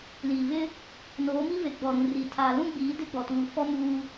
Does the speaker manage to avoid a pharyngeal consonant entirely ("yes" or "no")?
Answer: yes